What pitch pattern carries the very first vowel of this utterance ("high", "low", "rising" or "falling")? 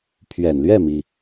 low